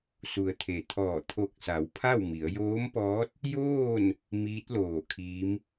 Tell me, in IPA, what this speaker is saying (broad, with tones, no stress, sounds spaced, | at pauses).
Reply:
s u˩ ə̯ t̪ʰ e˩ t̪ʰ ɔː˧˩ t̪ʰ o˧˩ k̚ s a˩˧ w pʰ a˥˨ w m i˩˧ ə̯ j oː˧˥ m p ɔː˧˥ t̚ | j oː˥˨ n | m iː˧˥ t̚ l oː˧˩ kʰ iː˧˥ m